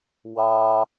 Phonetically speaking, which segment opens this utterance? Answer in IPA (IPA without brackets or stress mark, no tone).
w